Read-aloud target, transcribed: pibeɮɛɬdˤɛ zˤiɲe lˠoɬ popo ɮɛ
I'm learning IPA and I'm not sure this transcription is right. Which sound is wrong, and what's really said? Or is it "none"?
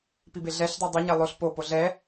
zˤ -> dˤ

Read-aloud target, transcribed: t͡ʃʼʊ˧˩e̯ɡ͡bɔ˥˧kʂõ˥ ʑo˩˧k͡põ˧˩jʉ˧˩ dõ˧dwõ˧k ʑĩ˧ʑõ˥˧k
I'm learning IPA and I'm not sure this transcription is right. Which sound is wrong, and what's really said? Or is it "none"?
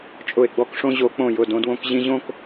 ʉ˧˩ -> ʊ˧˩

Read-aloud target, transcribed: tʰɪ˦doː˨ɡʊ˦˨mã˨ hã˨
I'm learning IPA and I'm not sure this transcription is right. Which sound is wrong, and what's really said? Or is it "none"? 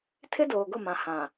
none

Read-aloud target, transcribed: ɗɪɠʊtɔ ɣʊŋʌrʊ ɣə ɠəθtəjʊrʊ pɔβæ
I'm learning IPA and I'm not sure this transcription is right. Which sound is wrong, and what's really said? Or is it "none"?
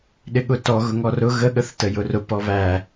ʌ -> ɔ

